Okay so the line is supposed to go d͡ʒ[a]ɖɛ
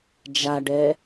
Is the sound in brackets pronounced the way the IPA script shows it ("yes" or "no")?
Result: yes